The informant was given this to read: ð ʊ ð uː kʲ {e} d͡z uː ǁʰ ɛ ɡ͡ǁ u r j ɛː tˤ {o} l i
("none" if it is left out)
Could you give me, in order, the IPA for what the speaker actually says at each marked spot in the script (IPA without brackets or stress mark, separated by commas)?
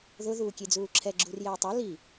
e, ɔ